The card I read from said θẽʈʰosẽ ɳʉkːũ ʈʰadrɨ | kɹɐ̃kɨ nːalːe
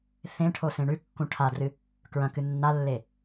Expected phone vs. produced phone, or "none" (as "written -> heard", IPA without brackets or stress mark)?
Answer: none